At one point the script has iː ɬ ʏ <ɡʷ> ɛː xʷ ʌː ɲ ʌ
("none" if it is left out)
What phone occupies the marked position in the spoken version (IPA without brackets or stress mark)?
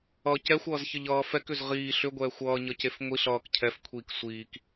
ɡʷ